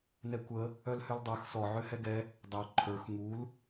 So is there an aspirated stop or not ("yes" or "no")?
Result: yes